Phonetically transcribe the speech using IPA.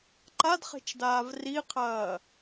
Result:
ǃ a d χ e̤ t͡ʃ d aː v r i qʰ ɐː

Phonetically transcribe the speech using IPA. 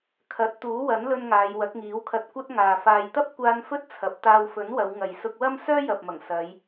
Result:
kʰ ɐ˨˥ t̚ t̪ uː˨˥ w ɐ˨˥ n l ɵ˧ n ŋ aː˨˧ j w ɐ˨˥ k̚ ŋ iː˨˥ w kʰ ɐ˧ t̚ kʷ ɐ˥ t̚ ŋ aː˨ f aː˨ j t̪ ɐ˥ p̚ kʷ aː˧ n f ɵ˥ t̚ t͡sʰ ɐ˨˥ p̚ t̪ aː˧ w f ɵ˨˥ n w ɐ˨˧ w ŋ ɐ˨ j s ʊ˧ k̚ w ɐ˥ m s œː˥ j ɐ˨ p̚ m ɐ˨˩ ŋ s ɐ˨˧ j

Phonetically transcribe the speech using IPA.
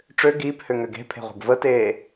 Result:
ʈ͡ʂ ø ɡ iː p h ø ŋ ø ɡ e̤ pʰ e̤ ʁʷ e̤ ɡ v ə t eː

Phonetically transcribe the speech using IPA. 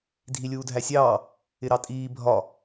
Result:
dʱ i lʲ uː dʱ æ sʲ ɑː | ɪ ɾ ɑ tʼ iː bʱ ɒ

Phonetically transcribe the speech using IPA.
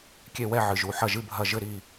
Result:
kʲ e˧˩ w ɛ˧˩ ʕ ɨ˩ ʒ u˩ ħ ɐ˧˩ ʒ ɨ˧˩ bʱ ɐ˧˩ ʒ ɘ˧˩ ɾ i˧˩

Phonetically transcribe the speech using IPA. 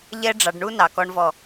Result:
ʎ ɛ˦ ɖ͡ʐ ɑ˨ ɖ ɳ u˦ n ɑ˨ k ɔ˦ ɳ v ɔ˦˨

